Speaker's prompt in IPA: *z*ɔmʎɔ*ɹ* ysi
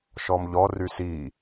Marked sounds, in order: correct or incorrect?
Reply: incorrect, incorrect

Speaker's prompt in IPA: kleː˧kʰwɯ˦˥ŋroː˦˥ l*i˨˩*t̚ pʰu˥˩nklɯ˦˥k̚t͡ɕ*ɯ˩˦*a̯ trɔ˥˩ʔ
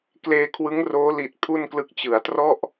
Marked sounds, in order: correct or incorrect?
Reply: correct, correct

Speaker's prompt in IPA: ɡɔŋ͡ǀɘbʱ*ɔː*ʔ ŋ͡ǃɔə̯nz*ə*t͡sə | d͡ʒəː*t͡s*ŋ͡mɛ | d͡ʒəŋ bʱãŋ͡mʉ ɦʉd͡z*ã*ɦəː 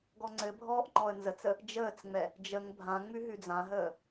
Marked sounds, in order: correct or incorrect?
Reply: correct, correct, correct, correct

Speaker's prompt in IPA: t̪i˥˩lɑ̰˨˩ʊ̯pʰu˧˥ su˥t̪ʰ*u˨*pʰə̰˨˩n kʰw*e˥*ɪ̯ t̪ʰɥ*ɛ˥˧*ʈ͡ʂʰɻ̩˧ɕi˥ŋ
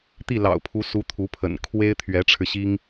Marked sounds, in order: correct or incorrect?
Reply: incorrect, correct, incorrect

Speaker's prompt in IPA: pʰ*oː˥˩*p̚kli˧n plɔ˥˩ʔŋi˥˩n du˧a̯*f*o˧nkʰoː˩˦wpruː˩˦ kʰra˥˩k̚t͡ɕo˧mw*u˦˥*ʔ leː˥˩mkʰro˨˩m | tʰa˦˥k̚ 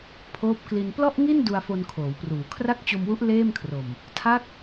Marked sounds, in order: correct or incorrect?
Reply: incorrect, correct, correct

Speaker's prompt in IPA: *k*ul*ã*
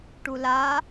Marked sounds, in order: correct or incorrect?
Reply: incorrect, incorrect

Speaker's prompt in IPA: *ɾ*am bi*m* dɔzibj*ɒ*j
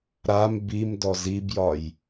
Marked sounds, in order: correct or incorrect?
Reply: correct, correct, correct

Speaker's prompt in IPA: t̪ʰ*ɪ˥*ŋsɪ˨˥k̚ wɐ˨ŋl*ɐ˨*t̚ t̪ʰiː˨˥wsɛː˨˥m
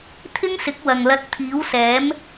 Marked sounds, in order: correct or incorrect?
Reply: correct, incorrect

